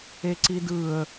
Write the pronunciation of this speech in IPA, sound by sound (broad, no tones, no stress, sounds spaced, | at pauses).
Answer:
e ǀ i d ɯ ə̯